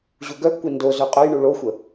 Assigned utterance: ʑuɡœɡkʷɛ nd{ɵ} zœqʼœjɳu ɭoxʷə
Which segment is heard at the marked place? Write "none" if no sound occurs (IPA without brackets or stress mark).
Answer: o